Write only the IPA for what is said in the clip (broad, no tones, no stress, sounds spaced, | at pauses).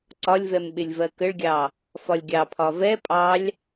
ǀ ɒ lʲ v ɛ m ɓ ɪ lʲ v ɜ k ə ɭ ɡʲ ɑ | f ɒ lʲ ɡʲ ɑ pʰ ɒ v ɛ pʼ ɑ lʲ